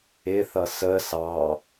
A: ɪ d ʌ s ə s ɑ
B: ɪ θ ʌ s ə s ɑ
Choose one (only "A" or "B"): B